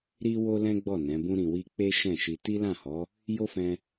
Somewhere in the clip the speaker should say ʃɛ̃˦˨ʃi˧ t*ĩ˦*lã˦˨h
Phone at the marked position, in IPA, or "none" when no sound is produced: i˦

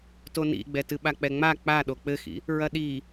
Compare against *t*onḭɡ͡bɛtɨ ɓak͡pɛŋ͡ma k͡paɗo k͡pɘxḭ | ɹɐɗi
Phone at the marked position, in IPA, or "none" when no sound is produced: t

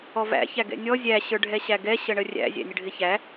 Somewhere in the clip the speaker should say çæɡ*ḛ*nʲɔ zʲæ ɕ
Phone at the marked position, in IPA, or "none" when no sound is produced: ɛ̰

